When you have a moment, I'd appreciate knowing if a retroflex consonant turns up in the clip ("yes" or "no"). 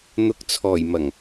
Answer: no